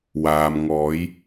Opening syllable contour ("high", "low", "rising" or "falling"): low